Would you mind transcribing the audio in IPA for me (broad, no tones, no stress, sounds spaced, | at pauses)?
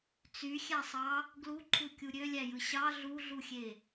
t͡s y xʲ æ sˤ ɑ | ɡ l u ǃʰ u kʲ u ɾʲ ø lʲ æ j ɯ ɕ ɑ ɮ u ɮ u xʲ e